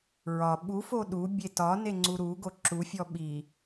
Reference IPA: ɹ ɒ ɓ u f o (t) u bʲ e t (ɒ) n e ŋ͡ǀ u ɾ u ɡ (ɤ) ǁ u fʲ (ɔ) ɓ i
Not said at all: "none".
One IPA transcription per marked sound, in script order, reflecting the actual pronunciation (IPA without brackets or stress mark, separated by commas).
ɗ, ɒ, o, ɔ